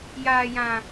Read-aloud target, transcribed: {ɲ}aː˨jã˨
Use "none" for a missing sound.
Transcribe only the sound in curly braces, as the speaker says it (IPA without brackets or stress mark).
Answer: j